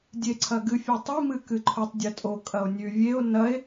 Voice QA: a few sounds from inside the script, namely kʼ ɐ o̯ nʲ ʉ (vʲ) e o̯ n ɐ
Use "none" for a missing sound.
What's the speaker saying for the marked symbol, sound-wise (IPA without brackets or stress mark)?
vʲ